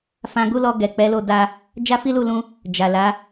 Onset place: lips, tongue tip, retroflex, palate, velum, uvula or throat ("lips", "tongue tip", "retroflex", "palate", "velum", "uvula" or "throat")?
lips